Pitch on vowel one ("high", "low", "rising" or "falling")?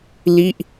falling